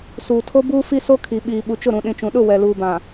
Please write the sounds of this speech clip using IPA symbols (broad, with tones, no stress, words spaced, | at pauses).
suː˨tʰo˦buː˦fi˦ so˦kʰi˨ ɓiː˨ɓu˨t͡ʃʊ˦˨ɾũ˨ ɗĩ˨t͡ʃũ˨ɗʊ˦˨ wɛ˨luː˨bã˨